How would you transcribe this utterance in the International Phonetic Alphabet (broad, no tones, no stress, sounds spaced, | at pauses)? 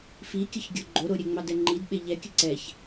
f i kʲ ə ç ɡʲ o ɡ͡ǃ o ɾ o ɾʲ ɛ ŋ͡m ɑ d ɛ ŋ͡ǃ i d ɓ e ʎ ɛ kʲ ə ǀ ɛ ç